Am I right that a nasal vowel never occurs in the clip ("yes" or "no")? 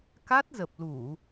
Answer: yes